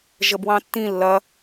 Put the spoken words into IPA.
ʒ ə b w ɑ̃ tː ĩ lː ɐ

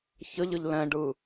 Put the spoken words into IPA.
ç ə ʎ ə ʎ l ɛ̃ ɖ ɯ

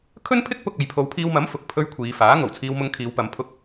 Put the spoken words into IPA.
kʰ ɵ˥ n pʰ ɪ˥ k̚ p ʊ˧ k̚ ɐ˨˧ j pʰ o˨˧ w pʰ iː˧ w m ɐ˨˥ m f ʊ˨ k̚ pʰ ɵ˧ ɥ kʷʰ iː˨˧ f aː˨˥ ŋ o˨˩ w t͡sʰ iː˧ w m ʊ˧ ŋ kʰ iː˨˧ w p ɐ˨˧ m pʰ ʊ˥ k̚

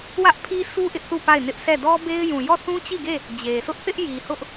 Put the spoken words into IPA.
w ä˦ ʔ pʰ i˦ sʰ u˦ ʔ ɪ˦ ʔ θ u˦˨ p a˦˨ ɪ̯ n ɪ˦ ʔ s ɛ˦˨ d ɔ˦ b e˦ ɪ̯ j ũ˨ j ɔ˦˨ θ ũ˦ t͡ɕ i˦˨ ɡ e˦˨ | d͡ʑ e˨ sʰ ʊ˦ ʔ θ ɪ˦ ʔ j i˨ h ʊ˦ ʔ

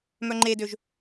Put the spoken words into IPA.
m œ ŋ͡ǃ e d ø ʒ

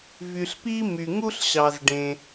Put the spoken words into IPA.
v y˩ ɬ p i˥ m y˩ ŋ u˥ ɬ ɕ ɑ˩ z ɖ ẽ˩

